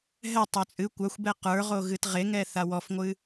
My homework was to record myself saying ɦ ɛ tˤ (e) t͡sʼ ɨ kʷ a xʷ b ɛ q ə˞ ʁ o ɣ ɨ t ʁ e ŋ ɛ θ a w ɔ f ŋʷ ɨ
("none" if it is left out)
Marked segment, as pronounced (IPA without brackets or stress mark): ø